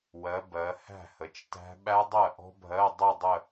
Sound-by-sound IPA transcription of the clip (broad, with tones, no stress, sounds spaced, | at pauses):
w ɜ˩˧ b ɜ˩˧ h æ̤˥˩ h ə˩˧ t͡ʃ t æ̤˦˥ ɓ æ˦˥ dˤ ɜ˥˩ ʔ ɔ̤˦˥ bʱ ɜ˧˥˧ dˤ ʊ˥˧ dˤ ə˥˧